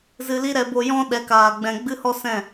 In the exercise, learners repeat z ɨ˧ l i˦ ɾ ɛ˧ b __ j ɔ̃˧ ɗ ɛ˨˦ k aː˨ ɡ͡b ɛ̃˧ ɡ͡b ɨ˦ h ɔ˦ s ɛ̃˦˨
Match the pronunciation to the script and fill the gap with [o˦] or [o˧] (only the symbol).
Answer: o˧